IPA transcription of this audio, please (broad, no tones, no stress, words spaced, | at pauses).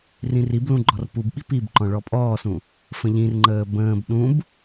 rĩriblũ ɡ͡ǃɔrpubɓi pibǃɔ̃ ɭɔpʼɔːsũ | fə̃ʎĩrŋ͡ǃəː bə̃ːb ɗũb